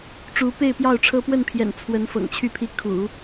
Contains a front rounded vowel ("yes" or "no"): yes